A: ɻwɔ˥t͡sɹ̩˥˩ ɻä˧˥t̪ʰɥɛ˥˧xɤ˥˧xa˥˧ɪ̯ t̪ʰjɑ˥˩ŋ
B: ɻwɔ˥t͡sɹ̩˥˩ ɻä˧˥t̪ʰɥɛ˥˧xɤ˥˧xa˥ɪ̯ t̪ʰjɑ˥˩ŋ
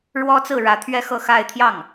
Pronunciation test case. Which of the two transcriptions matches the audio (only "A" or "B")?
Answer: A